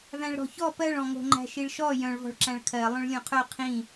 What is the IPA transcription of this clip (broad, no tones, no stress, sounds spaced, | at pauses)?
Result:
v æ̃ ɭ ɾ ɔ̤ ç ɔ p ɜ ɭ ɔ̃ ŋ o̤ ŋ͡ǃ æ̤ ʃ i ɭ ʃ ɔ j œ̃ ɭ v ɔ̤ ɭ ǁ æ̃ ɭ kʰ ɜ lˠ œ̃ ɭ lʲ õ qʰ œ qʰ ĩ